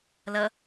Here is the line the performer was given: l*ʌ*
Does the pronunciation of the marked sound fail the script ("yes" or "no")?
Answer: no